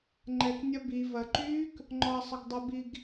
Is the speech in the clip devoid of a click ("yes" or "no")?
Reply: no